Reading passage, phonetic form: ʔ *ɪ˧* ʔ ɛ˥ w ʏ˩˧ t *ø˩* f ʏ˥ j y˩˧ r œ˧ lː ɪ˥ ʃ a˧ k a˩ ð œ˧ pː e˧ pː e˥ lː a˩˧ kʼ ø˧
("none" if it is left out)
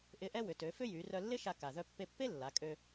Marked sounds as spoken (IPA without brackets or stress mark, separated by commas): ɪ˧˥, ø˩˧